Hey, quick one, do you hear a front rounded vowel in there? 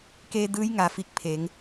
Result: no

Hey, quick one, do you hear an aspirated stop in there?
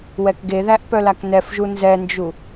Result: no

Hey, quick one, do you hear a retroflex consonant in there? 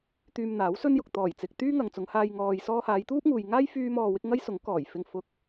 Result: no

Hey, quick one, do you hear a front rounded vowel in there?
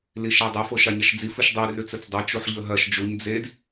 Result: no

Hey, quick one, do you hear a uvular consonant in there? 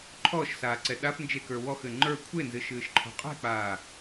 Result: yes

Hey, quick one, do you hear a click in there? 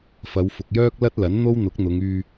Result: no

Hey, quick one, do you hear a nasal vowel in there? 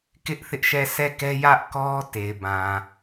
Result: yes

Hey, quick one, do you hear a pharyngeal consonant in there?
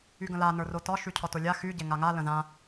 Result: no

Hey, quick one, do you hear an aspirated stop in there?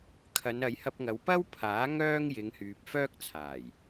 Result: yes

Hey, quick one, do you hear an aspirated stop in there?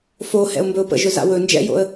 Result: no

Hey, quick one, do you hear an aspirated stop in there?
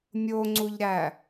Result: no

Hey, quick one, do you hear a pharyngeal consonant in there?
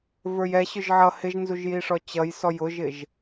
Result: yes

